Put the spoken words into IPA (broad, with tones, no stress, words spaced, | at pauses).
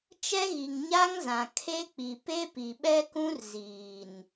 t͡ʃɛ˦ɣi˨ŋ ɲa˦ŋzã˨ kʰe˦k͡pi˨ pe˦pi˨ɓɛ˦kũ˦r ziː˨n